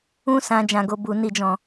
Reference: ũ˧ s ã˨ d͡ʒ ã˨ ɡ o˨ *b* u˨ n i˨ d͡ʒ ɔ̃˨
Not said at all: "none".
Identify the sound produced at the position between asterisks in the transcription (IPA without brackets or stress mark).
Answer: b